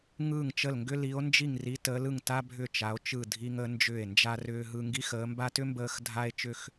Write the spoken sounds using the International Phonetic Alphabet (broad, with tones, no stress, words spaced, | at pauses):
ŋɯː˥˩ŋt͡ʃə˥˩lŋɡʏ˥ li˧˥o̯ nd͡ʒi˥˩ŋri˧˥ təː˧˥lɯ˥˩ŋ ta˥bʱʏ˥˩ t͡ʃa˧˥o̯t͡ʃɯ˥˩dʱi˥ŋ ə˧˥ nd͡ʒʏː˥˩e̯nd͡ʒa˥rʏː˥ɦɯ˥ ŋɡi˥xəː˧˥mba˥ tʏ˥ mbəː˥x dʱa˥e̯ t͡ʃʏ˥x